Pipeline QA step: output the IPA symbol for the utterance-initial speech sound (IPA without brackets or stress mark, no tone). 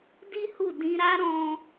d